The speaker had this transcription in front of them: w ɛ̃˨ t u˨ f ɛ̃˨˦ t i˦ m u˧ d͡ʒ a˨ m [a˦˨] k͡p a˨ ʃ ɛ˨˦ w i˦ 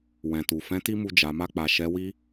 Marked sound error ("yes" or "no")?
yes